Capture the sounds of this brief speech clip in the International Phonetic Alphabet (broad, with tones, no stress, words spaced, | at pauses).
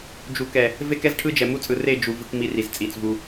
d͡ʒu˨ kɛ˨ | ve˦kɛ˦zʈʰɯ˦d͡ʒɛ˨ mu˦t͡sʼɯ˨re˦˨ d͡ʒu˨ vɯ˦k mi˦ri˨zt͡sʼi˨t͡svu˦